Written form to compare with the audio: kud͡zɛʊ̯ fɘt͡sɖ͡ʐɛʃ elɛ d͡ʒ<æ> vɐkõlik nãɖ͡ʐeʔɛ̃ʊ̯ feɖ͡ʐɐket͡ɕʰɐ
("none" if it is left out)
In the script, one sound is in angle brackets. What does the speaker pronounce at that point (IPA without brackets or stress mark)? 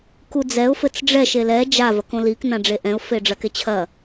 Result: a